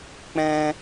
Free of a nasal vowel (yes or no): no